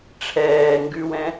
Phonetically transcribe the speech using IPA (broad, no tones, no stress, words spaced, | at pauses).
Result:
ʈ͡ʂʰɛː ŋɡʉwɛ̃